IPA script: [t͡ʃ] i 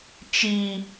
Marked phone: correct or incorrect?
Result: correct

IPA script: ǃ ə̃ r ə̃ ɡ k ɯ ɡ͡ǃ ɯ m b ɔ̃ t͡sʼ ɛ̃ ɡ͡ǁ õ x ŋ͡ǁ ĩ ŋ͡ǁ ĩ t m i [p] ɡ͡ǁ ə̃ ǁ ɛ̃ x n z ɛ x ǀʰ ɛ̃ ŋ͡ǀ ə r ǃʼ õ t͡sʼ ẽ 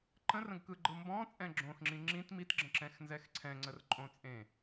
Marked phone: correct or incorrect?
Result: incorrect: t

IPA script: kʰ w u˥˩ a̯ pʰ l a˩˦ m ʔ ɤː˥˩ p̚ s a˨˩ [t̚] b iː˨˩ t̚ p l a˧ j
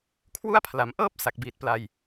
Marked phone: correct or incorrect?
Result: incorrect: k̚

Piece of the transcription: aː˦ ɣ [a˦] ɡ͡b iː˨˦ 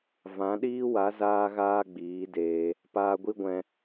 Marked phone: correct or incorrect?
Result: incorrect: aː˦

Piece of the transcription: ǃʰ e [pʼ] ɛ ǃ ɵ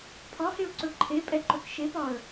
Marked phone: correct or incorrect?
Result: correct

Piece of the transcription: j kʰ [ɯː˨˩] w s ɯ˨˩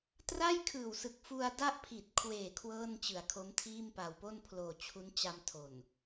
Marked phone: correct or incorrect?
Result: correct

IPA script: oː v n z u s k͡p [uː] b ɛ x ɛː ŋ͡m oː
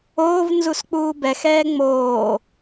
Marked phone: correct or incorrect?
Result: correct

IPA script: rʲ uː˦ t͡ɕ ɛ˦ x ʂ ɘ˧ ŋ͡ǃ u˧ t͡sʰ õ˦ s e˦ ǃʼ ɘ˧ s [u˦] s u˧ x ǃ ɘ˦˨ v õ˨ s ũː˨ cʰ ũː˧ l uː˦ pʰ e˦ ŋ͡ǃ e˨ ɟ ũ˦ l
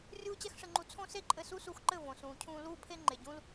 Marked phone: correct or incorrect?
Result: correct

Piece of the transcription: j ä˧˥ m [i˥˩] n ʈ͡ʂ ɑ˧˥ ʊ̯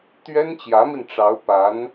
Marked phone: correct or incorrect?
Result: incorrect: i˧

